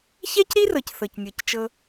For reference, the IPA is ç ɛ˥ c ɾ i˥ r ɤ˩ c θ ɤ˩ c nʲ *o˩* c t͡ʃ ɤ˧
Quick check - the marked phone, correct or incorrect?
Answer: incorrect: ɤ˩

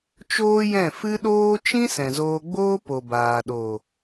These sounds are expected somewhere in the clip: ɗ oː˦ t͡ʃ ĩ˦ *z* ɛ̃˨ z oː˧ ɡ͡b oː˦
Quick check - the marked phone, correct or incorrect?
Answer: incorrect: s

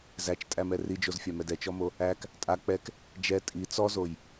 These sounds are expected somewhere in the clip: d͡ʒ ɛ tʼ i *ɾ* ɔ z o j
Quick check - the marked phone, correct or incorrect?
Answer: incorrect: t͡s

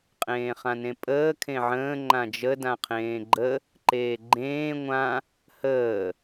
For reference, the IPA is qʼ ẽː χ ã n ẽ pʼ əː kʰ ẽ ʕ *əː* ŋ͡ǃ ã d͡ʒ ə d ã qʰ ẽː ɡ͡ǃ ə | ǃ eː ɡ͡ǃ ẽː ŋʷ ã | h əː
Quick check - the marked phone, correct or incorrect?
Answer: incorrect: ə̃ː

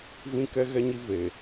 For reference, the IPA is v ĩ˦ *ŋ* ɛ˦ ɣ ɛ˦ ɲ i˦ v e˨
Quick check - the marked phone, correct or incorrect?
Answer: incorrect: k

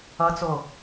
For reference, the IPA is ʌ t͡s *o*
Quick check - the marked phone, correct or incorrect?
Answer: correct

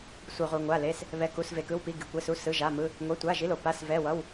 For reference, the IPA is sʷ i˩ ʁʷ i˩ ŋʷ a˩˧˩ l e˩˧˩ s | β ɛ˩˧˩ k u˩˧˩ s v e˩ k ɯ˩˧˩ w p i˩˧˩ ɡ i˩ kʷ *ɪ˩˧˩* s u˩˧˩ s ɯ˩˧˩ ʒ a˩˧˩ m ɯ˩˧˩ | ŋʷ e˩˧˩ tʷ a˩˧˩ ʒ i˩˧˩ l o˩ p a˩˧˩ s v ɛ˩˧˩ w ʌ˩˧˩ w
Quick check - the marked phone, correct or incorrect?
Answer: incorrect: ɛ˩˧˩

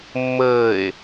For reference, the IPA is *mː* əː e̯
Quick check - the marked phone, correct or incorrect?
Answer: correct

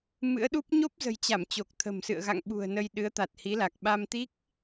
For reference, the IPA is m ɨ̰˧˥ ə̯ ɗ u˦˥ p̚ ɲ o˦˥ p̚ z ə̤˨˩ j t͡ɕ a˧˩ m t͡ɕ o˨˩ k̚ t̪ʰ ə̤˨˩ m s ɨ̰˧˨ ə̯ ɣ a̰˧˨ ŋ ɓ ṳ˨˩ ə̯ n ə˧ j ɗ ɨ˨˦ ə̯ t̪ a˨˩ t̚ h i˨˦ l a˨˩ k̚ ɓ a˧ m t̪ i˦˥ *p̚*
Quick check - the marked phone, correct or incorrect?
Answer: incorrect: k̚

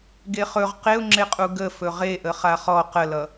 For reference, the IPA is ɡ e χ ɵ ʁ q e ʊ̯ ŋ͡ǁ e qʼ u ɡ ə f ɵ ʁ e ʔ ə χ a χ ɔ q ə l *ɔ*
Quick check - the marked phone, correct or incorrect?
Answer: incorrect: ʌ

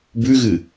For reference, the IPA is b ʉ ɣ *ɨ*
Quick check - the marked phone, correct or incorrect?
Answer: correct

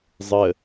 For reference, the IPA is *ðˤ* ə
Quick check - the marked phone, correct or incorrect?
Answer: incorrect: zˤ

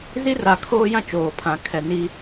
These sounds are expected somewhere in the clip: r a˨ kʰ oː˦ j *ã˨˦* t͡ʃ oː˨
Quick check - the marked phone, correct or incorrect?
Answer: incorrect: ã˦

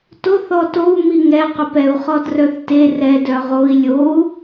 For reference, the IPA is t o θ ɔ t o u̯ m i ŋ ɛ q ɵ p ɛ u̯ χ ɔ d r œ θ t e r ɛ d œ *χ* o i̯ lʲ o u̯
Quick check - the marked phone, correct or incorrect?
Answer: incorrect: ʁ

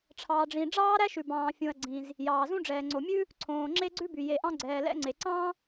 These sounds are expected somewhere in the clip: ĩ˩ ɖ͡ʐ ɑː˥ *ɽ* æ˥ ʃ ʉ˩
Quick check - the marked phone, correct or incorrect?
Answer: incorrect: ɾ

